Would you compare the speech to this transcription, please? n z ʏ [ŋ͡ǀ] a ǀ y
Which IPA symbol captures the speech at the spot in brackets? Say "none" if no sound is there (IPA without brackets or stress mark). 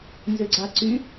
ɡ͡ǀ